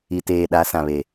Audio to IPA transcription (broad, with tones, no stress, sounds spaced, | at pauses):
i˨ t eː˨ ɗ a˨˦ s ã˨ β e˨